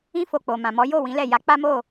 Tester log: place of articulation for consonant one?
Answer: labial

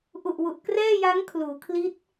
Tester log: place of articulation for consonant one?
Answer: glottal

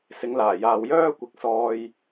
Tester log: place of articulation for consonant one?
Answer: alveolar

